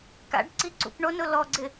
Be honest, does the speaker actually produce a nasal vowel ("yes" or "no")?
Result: no